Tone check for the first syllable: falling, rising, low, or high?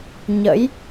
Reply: rising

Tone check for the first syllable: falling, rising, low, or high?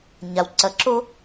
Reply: low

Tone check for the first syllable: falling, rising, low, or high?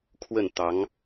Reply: falling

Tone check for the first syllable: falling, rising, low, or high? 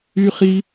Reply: high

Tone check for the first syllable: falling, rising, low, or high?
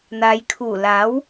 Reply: low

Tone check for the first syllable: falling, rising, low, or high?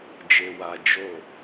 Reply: low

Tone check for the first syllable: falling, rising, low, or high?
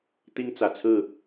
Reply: high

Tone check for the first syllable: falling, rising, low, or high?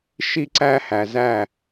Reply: high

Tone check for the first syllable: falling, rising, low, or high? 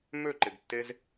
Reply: falling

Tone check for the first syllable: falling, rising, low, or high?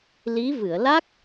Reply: rising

